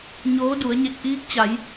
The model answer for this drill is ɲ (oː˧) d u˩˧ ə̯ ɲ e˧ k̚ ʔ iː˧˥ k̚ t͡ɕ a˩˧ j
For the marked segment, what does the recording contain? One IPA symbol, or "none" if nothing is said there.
oː˧˥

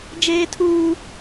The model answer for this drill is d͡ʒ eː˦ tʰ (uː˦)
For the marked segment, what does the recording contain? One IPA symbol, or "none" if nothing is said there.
uː˦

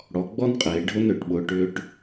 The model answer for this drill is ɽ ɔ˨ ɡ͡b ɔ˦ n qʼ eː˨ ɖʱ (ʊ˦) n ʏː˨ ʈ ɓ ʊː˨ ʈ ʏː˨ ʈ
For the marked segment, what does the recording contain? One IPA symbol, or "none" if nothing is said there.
ʊ˦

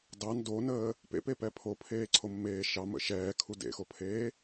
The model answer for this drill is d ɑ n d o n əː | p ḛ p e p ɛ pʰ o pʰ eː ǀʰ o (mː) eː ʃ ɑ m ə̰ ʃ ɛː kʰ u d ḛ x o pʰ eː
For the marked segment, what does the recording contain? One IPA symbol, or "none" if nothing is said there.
mː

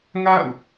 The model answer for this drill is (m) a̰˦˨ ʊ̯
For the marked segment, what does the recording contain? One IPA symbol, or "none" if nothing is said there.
ŋ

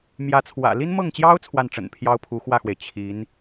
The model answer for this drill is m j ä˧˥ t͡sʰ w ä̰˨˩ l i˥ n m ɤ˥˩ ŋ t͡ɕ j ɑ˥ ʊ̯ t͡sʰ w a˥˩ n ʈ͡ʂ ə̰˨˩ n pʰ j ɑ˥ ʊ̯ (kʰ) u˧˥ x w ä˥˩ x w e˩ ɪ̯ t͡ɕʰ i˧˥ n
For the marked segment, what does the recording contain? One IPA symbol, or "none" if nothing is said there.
pʰ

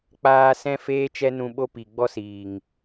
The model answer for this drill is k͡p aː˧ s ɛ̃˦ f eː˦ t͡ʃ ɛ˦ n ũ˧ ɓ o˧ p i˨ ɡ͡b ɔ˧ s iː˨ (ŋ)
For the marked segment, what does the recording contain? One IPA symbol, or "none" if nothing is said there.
ŋ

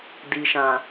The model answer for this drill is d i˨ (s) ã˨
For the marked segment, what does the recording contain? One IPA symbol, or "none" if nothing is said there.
ʃ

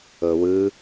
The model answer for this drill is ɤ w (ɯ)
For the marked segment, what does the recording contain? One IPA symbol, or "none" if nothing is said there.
ɯ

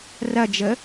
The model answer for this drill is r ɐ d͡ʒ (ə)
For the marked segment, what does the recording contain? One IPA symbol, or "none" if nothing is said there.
ə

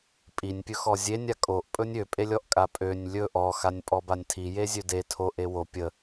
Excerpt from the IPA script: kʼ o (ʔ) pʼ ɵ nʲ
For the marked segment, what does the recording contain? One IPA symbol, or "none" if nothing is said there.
ʔ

